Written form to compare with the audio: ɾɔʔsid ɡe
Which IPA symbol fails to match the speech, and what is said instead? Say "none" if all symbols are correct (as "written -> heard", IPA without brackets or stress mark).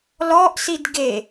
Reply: ɾ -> l